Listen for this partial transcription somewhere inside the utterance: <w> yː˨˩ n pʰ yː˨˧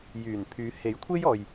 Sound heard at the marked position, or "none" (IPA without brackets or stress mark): j